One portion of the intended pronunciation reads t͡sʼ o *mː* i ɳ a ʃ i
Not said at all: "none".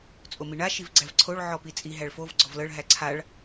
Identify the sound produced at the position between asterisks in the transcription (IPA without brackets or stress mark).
m